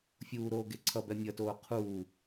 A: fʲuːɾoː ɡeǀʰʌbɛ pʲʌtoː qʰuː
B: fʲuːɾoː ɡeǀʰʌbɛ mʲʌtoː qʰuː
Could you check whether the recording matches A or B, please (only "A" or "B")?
B